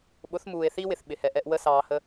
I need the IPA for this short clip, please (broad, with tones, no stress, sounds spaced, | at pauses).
ɓ ʊ˨˦ θ m uː˨ e̯ θ i˦ w ɪ˨ θ ɓ ɪ˨ h ɛ˨ ʔ ɛ˧ ʔ w ə˦ s ɑː˧ h ə˦